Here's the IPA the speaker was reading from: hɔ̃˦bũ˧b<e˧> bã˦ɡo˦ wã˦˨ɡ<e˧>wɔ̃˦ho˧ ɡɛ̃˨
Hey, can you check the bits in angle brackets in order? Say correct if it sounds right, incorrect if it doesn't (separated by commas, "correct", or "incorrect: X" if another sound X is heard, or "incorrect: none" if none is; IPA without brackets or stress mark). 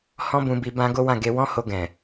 incorrect: i˧, correct